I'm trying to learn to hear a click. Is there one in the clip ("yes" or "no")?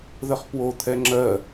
yes